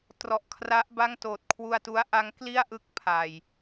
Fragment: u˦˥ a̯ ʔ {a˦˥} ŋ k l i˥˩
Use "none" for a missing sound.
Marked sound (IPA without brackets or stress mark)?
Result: a˦˥